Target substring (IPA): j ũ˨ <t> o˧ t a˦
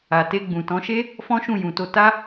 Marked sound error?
no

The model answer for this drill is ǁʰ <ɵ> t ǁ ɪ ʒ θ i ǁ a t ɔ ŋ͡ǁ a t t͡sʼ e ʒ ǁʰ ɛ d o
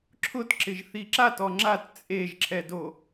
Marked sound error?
yes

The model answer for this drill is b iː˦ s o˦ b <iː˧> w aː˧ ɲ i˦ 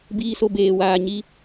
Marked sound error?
yes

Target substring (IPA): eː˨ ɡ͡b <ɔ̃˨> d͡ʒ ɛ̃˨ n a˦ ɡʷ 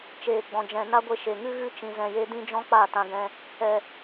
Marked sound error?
no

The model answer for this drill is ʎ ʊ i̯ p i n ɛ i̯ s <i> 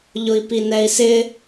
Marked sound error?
yes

